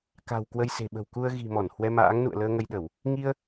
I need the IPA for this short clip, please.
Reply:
k a̤˨˩ w k w ə˧ j s e̤˨˩ ɓ ə̤˨˩ w k u˧ ə̯ ɣ i̤˨˩ m ɔ˧˩ n h w ɛ˧ m a̰ː˧˥ ŋ n ṵ˧˨ ə̯ l əː˧ ŋ ə˧ j ɗ ə˧˩˨ w | ŋ i˧ ə̯

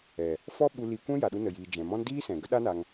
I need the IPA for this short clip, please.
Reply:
ɛ˨ | f ɔ˦ ɓ u˧ l i˧ kʷ ɛ̃˦ j a˨ ɗ u˧ n ə˨ j iː˨ d͡ʒ ɛ̃˨ m ɔ̃˦ n d iː˦ s ɛ̃˨ ɡ ə˦ ɗ a˦ n a˧ ŋ

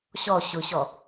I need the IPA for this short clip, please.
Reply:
ɕ ɔ ɕ ʊ ɕ ɔ

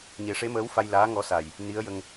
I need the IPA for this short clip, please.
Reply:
ɲ e˨˩˦ ʂ e˧˥ m əː˧˥ w f a˧ j l aː˧˥ ŋ ɔ˧ s a˨˩ j | n i˧˥ ə̯ j ə˧ ŋ

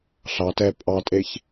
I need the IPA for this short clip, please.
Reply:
ɬ ɑ t ɛ pʼ ɑ tʼ e ç

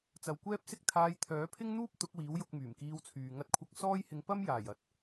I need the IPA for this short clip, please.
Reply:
t͡s ɐ˨ w kʷ ɛː˥ p̚ s ɪ˥ k̚ t̪ʰ aː˧ j t̪ʰ œː˨˥ pʰ ɪ˥ ŋ n̪ uː˥ p̚ t̪ ʊ˨˥ k̚ w iː˨˥ w j ʊ˧ k̚ m yː˨˩ m k iː˧ w t͡sʰ yː˨ ŋ ɐ˧ t̚ kʷʰ ɐ˧ k̚ s ɔː˥ j h ɪ˧ ŋ p ɐ˥ m j aː˨˩ j ɐ˨˥ t̚

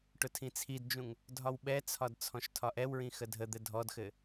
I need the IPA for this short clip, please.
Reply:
ʈ ʊ tʰ ĩ t͡sʰ i d d͡ʒ ũ ŋ | dʱ ɒ w ɓ ɛ t͡sʰ ɒ d t͡sʰ ɔ̃ ʃ tʰ ɒ ʔ ɛ w ɹ ĩ x ə dʱ ə d̪ ɘ dʱ ɔ d x ɘ

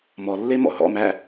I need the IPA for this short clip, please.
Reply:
m ɔ lː e m ɔ̰ ɦ ɔ̰ m æ

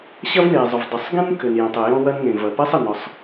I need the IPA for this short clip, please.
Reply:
ɕ ɐ˥ v n e˩ zˤ ʊ˩ v dˤ ʏ˩ sˤ ɡ ẽ˥ n k ʏ˩ n j ẽ˩ tˤ ɘ˩ j ɔ̃˥ w ɐ˥ n ŋ ẽ˩ v ɐ˩ p ɛ˥ sˤ ɘ˩ n ɔ˩ sˤ

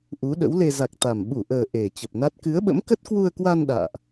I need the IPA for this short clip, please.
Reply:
ʔ u˨˦ ɗ ə̰˧˥ w l e˧ z a˨˩ k̚ t̪ a˨˩ m ɓ u˧˩ ʔ əː˨˩ ʔ e˨˩ t͡ɕ ə˨˩ p̚ n a˦˥ t̚ k ɨ˨˦ ə̯ ɓ ə̰˧˥ m k ə˦˥ t̚ k w u˧ ə̯ k w a˧ n ɗ a̰ː˧˨ ʔ

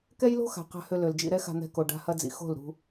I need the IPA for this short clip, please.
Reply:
k ɛ˦ j l o̤˦ x a̤˨ q a̤˧ h ø˧ l ø˨ l d͡ʒ ḭ˦˨ ɾ ɛ˦ x a̤˧ n̪ ɛ̤˧ k o˨ ɖ a̤˧ h ɐ˧ d͡z ḭ˨ x o̤˦˨ l ɾ ṳ˧

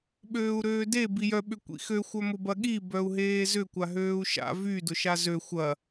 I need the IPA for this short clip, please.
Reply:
ɓ øː u̯ ɾ øː d e b i j œ ɓ ʏ kʷ ḭ x ø xʷ œ m ʊ b ɐ ɠ i b œ u̯ ɦ eː z ʏ kʷ a ɦ øː u̯ ʃ a̰ v y d ʊ ʃ a z ø xʷ ɐ

